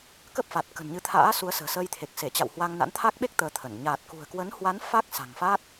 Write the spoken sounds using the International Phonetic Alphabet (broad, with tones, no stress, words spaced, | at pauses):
kə˦˥p̚ fa˨˩t̚ kə̤˨˩nɲɨ˨˦t̪ʰa̰ː˧˥ su˨˦ə̯sə̤ː˨˩səː˧jt̪ʰe˨˩k̚ se˧˩t͡ɕa̰˧˨w hwa˧ŋna̰˧˥n t̪ʰa˦˥k̚ɓe˦˥k̚ t̪əː˧t̪ʰə˧˩n ɲaː˨˩t̚kṳ˨˩ə̯kwə˨˦n hwa˨˦n fa˦˥k̚ sa̤˨˩ŋfa˦˥t̚